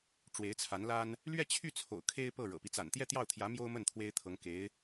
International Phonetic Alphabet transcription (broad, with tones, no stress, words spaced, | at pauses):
ʈ͡ʂwe˧˥ɪ̯t͡sʰa˧˥nla˥n | lɥɛ˥˧t͡ɕʰy˥˩t͡sʰo̰˨˩ʊ̯ kʰe˥ɪ̯pɤ˥˩ɻɤ̰˨˩pi˦ t͡sa̰˨˩nt̪jɛ˥˧t̪jɑ˥˩ʊ̯t̪ʰjä˧˥ mjo˥ʊ̯mə˥˩n t̪ʰwe˥ɪ̯t̪ʰɤ˧˥ŋ ke˧˥ɪ̯